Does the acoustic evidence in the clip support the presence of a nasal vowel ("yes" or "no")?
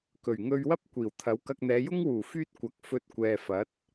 no